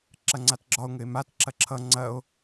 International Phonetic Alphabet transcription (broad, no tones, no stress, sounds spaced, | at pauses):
ǁ ɐ ŋ͡ǀ a t ɡ͡ǁ ɒ o̯ ŋ ɘ e̯ m a t ǁ ɐ ǁʰ ʌ ŋ͡ǀ ɐ o̯